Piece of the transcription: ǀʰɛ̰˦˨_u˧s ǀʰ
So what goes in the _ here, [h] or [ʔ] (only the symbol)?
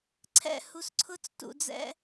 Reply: h